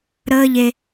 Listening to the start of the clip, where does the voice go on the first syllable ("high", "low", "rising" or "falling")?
high